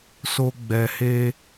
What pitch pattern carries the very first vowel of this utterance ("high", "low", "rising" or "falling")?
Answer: high